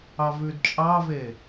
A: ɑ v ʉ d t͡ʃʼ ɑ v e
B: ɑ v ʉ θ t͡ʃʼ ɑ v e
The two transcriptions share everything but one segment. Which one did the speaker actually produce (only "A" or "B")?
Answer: A